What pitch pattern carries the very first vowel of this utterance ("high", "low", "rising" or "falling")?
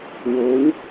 rising